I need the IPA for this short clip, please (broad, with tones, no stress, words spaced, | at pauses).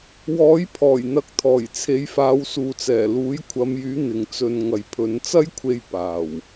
wɔː˨˥j pʰɔː˨˩jn̪ɐ˨k̚t̪ʰɔː˨˩j t͡sʰe˨˧jfaː˨˧wsuː˨t͡sɛː˨˩ luː˨˥jkʷʰɐ˨˧mjyː˨˥ n̪ɪ˨ŋt͡sɵ˧n ŋɐ˨jpʰɵ˨˧n t͡sɐ˥jkʷʰe˧j paː˨˩w